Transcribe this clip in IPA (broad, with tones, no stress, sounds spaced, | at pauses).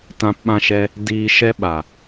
t ã˧ p ɓ ã˧ ʃ ɛ˧ | d iː˦ ʃ ɛ˧ ɓ a˨